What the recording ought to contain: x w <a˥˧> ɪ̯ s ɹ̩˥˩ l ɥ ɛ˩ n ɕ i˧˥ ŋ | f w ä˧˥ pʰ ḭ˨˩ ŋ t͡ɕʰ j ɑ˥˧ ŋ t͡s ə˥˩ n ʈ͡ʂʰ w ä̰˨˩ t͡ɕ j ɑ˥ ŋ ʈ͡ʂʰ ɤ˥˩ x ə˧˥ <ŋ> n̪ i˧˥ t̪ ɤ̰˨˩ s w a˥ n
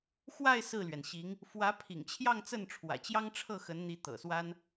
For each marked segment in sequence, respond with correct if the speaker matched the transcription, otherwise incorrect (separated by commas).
correct, incorrect